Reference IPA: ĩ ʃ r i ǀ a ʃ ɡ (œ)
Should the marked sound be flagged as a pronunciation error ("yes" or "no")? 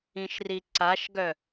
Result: no